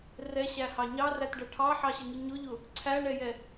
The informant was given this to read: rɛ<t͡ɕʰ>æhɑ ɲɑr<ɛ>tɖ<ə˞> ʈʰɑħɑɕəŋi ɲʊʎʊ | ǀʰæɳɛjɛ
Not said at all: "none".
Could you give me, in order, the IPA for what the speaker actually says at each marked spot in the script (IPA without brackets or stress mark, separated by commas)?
ɕ, æ, ʌ